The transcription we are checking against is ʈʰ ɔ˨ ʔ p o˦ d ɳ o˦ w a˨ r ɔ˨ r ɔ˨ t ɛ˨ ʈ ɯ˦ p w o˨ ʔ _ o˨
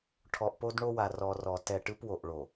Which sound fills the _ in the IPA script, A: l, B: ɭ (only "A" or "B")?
B